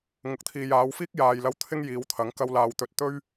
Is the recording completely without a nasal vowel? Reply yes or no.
yes